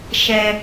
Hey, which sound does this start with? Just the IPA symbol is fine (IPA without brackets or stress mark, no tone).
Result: ʃ